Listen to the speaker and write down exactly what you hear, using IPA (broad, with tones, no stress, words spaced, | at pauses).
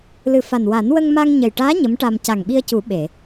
lɨ˨˩fa˨˩n wa˨˩˦nwə˧ŋma˧ŋ ɲə˨˩jʈaː˧˥ ɲə˧˥mʈa˧m ca˨˩ŋɓi˧ə̯cu˨˩˦ ɓe˨˩˨